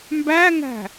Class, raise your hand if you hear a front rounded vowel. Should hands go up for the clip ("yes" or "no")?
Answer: no